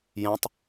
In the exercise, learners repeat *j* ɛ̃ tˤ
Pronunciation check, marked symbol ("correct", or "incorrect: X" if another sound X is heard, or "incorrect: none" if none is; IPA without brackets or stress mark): correct